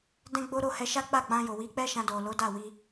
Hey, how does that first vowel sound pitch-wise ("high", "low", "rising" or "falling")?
high